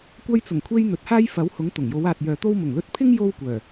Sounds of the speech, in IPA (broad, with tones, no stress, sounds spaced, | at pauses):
kʷ ɐ˧ j t͡s ʊ˨˩ ŋ kʷʰ e˧ j n̪ ɵ˨˥ t̚ h aː˥ j f ɐ˨˥ w h ʊ˨˥ ŋ t̪ ʊ˨˩ ŋ j o˨˧ w aː˨ t̚ j œː˨ t̪ o˥ w m ʊ˨˩ ŋ l ɵ˧ t̚ pʰ ɪ˥ ŋ j o˥ w kʷ œː˨˩